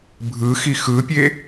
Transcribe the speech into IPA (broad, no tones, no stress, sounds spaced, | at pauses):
bʱ ɯ x i x ɯ pʲ e